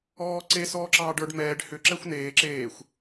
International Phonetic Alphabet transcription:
ɔːǀe sɔːǁɑːɖə˞ɖ mɛːɖ hʏ ǁɛxʷneː ǁeːxʷ

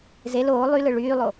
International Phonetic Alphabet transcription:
zel oː lˠylɯ ɭyːlˠo

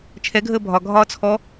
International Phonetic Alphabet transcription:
t͡ʃʰɛɡʱəː bʱɒ ɡʱɒːt͡sʰɔ

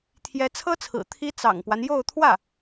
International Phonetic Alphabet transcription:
t̪ʰjɛ˧˥t͡sʰɤ˥t͡sʰɹ̩˨˩ t̪ʰi˥ t͡sɑ̰˨˩ŋpwa˦njo˥˧ʊ̯ t̪ʰwä˥˩

